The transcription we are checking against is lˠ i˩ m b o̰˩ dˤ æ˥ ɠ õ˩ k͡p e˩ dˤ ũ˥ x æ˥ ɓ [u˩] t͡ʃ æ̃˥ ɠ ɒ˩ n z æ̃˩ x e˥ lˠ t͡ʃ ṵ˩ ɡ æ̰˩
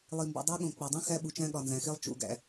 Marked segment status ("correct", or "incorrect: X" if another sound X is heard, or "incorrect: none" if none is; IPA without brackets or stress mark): correct